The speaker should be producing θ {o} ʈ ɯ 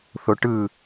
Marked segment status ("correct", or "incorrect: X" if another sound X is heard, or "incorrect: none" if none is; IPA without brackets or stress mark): correct